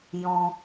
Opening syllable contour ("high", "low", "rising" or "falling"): high